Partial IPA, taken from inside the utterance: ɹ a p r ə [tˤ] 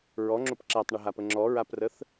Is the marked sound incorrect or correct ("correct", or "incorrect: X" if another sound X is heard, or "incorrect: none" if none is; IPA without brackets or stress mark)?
incorrect: θ